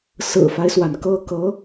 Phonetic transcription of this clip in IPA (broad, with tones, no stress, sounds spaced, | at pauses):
s ɹ̩˨˩ f a˦ ɪ̯ s w a˩ n k ɤ˥˩ k ɤ˧˥